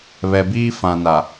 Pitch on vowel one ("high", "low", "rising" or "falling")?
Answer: low